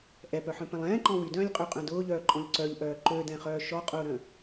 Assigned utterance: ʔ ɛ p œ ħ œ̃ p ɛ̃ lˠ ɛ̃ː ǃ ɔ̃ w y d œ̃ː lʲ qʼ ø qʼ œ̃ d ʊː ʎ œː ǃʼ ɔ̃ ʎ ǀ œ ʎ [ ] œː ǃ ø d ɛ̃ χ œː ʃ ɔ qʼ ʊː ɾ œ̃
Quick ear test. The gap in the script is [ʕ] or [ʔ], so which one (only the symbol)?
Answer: ʔ